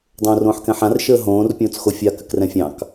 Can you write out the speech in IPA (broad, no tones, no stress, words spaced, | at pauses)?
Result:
dˤõːrõːħkɛ̃ħãr ʃəːɦõːr pʲõːt͡sxofʲa kɘkrɛ̃fʲɑ̃k